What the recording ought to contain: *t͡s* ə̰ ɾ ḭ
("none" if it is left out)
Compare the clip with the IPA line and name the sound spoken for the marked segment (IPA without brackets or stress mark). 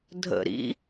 dʱ